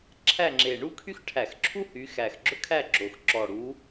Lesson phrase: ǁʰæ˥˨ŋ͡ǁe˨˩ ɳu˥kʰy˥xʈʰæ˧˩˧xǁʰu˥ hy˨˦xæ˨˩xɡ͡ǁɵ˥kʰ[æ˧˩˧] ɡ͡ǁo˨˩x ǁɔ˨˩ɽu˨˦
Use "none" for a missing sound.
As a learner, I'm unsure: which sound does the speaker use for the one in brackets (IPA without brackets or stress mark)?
æ˥˨